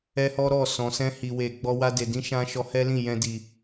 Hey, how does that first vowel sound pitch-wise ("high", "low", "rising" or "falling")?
high